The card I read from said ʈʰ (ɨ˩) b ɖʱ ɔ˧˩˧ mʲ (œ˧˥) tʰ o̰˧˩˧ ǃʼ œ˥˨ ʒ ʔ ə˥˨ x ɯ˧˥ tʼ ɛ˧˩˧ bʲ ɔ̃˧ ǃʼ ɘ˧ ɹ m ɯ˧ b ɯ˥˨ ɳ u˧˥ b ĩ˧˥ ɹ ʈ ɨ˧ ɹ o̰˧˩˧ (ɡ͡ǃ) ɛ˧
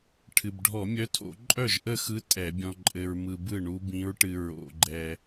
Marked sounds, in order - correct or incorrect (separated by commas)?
correct, correct, correct